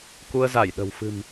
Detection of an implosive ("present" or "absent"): present